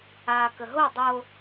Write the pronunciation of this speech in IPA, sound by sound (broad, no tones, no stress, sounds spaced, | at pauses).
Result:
a k ə ɦ o dˤ o